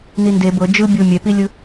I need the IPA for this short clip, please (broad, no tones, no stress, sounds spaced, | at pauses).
n i n d e b ɤ d͡ʒ ɯ bʲ o mʲ ɛ p i lʲ ɯ